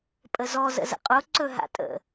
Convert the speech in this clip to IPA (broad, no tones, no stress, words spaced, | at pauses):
pʼəzɔ zə̰zə̰qʼo ǀɵɦa̰tʼə̰